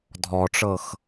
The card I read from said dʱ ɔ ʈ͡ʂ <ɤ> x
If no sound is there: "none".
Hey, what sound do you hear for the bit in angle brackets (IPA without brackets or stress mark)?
ɤ